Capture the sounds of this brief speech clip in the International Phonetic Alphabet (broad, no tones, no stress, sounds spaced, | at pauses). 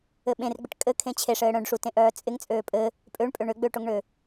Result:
ɘ ɓ ẽ r ɡ͡b ɪ ʈ kʼ ɘ kʰ ẽ t͡ɕʰ e ʂ ɘː ɽ œ̃ ɖ ʂ u t ẽ ʔ œː t͡sʼ ɪ ŋ t͡sʼ øː pʼ ɘ | pʼ ø ɳ pʼ ø ɳ ø ɡ͡b øː ʈ o ŋ ɳ ø